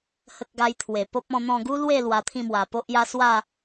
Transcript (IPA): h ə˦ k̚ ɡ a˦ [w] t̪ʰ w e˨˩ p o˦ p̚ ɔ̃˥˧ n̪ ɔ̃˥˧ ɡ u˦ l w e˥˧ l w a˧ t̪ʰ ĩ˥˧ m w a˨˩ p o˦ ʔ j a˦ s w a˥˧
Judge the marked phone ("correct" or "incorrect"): incorrect